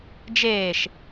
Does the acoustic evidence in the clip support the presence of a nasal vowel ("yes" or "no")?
no